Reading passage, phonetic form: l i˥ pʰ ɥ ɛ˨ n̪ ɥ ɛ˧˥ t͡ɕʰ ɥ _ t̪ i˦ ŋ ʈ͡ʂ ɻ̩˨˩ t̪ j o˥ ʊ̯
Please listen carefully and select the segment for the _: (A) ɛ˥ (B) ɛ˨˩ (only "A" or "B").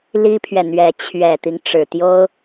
B